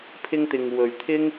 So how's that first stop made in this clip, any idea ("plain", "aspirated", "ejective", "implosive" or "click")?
aspirated